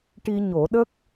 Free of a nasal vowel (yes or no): yes